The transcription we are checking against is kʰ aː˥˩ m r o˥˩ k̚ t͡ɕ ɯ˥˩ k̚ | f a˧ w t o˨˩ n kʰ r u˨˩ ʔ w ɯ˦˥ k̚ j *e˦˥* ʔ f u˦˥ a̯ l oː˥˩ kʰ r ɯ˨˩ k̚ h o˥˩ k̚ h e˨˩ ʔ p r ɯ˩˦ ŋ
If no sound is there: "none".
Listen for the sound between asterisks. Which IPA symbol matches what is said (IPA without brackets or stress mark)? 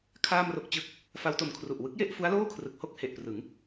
e˥˩